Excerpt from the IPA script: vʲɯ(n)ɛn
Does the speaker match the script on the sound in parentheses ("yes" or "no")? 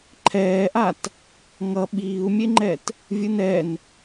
yes